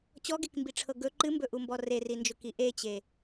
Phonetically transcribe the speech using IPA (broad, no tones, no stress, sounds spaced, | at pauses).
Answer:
t͡ɕ ɔ ɡ e k m b i ʈ͡ʂʰ ɤ ɡ ɵ ǃ ɨ m b ɵ ʔ u m b ɔ r e r i n d͡ʒ ʊ k i ʔ e t͡ɕ e